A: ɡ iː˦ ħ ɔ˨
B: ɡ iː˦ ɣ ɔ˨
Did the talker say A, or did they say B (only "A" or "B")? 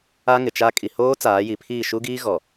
B